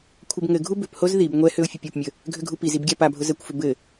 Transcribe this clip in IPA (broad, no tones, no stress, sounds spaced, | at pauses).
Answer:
kʷʰ ɘ b ŋ ɘ ɡʱ u b ʏ p h o z ð i b ŋʷ ɛ h ʏ ʊ̯ fʲ ʊ pʲ o p mʲ ə | ɡʱ ʏ ɡʱ u p i z i b ɡʲ a p a bʱ ʊ z ə kʷ f ʏ b ɘ